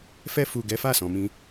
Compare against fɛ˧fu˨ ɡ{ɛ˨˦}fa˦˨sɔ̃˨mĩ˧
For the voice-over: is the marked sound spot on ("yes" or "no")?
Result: yes